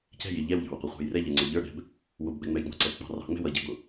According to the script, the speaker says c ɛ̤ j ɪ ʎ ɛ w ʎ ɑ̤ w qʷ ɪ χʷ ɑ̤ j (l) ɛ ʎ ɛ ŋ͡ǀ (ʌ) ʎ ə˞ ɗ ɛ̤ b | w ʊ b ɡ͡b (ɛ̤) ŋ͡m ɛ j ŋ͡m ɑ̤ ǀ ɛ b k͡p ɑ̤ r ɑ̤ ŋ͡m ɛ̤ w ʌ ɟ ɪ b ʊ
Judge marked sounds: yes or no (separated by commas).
no, no, no